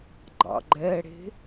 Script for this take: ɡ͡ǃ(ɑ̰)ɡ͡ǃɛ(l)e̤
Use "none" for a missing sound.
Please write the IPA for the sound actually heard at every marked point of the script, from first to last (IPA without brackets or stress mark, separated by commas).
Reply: ɑ̰, ɽ